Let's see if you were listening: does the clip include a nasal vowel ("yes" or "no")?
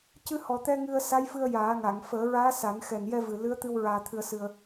no